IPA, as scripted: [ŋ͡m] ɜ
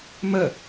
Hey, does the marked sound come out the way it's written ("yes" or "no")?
no